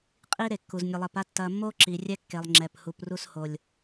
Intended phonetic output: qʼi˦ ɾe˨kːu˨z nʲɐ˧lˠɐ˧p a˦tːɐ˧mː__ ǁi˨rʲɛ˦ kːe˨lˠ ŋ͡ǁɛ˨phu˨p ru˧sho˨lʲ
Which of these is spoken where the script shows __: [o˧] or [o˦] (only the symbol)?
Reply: o˦